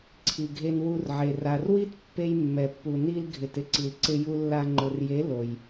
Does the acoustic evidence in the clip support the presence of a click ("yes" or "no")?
yes